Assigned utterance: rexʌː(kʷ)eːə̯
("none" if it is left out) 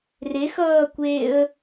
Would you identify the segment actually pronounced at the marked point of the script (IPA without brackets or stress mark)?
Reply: kʷ